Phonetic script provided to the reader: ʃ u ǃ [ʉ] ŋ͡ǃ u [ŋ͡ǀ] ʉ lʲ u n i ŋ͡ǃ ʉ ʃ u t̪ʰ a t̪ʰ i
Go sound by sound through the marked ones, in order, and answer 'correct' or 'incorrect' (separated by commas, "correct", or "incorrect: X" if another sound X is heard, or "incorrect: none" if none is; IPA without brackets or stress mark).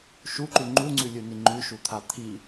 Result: correct, correct